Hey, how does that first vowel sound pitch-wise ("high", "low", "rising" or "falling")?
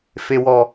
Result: high